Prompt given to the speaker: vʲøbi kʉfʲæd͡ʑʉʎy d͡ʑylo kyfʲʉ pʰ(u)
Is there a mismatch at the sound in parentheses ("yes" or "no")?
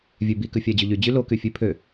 yes